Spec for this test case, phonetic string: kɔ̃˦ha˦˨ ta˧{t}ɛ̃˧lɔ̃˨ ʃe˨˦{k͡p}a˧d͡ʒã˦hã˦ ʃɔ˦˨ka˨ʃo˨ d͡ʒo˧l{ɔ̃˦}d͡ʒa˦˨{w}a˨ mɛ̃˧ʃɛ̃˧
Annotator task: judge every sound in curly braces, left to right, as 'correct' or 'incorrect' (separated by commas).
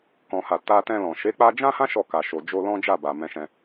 correct, correct, correct, incorrect